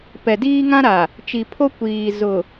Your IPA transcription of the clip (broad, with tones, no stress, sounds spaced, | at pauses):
p ɛ˨ d iː˦ ŋ ã˦ ɾ a˨ | t͡ʃ i˨ pʰ o˦ kʷ iː˨ z ʊ˨